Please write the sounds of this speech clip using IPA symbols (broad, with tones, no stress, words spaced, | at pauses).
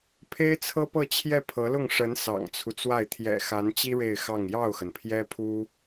pʰe˥ɪ̯t͡sʰɤ˥pɤ˥˧ t͡ɕʰjɛ˥˩pʰɤ˧˥lʊ˥˩ŋ ʂə˧˥n sɑ̰˨˩ŋt͡sʰu˦t͡swa˥˩ɪ̯ t̪ʰjɛ̰˨˩xa˧˥nt͡ɕi˥ ɻe˥˧ɪ̯xɑ˥˧ŋ jɑ˥˩ʊ̯xə˩npʰjɛ˥pʰu˥